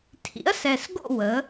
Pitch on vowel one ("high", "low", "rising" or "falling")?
rising